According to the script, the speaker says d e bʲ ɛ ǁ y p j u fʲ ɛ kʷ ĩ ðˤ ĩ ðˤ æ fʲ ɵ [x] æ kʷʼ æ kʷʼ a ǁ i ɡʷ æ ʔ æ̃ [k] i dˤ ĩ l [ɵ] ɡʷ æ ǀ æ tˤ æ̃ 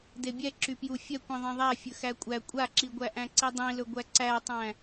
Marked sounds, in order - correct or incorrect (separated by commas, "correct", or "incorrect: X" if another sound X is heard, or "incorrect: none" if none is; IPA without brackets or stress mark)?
correct, incorrect: ǀ, correct